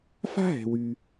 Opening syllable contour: high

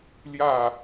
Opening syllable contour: falling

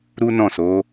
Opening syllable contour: high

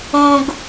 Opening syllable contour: high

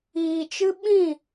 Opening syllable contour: low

